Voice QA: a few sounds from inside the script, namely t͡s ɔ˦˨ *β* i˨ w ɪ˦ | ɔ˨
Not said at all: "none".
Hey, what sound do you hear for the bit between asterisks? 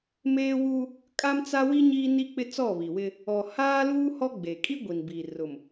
β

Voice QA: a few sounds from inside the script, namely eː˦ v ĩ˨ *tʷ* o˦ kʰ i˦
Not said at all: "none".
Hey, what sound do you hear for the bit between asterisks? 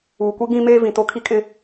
t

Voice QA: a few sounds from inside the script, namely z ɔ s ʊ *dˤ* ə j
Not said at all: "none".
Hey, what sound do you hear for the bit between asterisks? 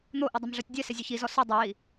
dˤ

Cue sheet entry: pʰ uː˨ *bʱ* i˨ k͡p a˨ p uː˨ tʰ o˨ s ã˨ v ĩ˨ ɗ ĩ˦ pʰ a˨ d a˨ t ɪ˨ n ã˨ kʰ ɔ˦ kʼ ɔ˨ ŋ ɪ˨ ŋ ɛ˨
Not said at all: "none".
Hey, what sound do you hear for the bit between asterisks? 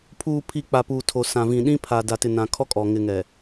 pʰ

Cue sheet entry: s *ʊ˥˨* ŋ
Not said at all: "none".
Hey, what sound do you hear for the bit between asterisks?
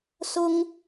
ʊ˦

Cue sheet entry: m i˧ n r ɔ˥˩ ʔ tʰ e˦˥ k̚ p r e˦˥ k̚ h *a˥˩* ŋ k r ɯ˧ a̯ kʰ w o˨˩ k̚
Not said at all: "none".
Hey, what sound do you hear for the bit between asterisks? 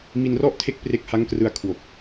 a˦˥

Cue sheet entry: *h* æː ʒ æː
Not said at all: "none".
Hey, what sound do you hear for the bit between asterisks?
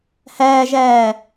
h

